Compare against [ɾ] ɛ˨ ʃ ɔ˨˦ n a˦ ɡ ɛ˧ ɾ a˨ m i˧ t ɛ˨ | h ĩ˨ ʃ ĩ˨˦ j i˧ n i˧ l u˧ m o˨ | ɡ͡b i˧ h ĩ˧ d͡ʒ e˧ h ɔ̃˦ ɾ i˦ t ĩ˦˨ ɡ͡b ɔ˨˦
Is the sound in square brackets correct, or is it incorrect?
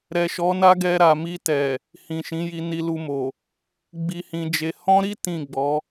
correct